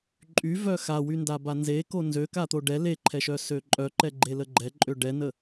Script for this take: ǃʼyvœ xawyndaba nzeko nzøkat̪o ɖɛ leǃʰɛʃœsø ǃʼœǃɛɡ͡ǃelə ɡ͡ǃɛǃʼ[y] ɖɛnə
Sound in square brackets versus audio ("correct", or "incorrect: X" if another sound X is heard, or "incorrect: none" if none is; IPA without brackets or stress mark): incorrect: ø